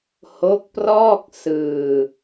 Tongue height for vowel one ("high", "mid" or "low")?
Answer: mid